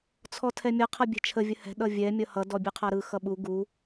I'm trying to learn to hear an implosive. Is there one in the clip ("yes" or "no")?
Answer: yes